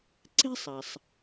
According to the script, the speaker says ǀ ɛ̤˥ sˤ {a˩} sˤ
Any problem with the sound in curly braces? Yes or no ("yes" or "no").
no